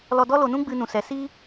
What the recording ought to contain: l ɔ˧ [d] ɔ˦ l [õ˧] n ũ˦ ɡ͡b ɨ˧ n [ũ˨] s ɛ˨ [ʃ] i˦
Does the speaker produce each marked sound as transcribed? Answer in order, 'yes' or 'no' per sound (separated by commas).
yes, no, yes, no